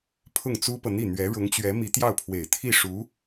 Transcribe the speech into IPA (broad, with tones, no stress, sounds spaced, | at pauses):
pʰ ʊ˥˩ ŋ t͡s u˥ p ɤ˨ n̪ i˥˩ n̪ ɥ ɛ˧˥ ɻ ʊ˧˥ ŋ t͡ɕ ɥ ɛ˧˥ m i˧˥ t̪ j ɑ˥˩ ʊ̯ pʰ w e˨˩ ɪ̯ t̪ʰ i˥˩ ʂ u˧˥